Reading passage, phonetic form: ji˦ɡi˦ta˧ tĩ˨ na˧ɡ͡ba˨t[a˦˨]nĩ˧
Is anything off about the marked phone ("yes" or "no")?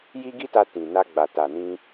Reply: yes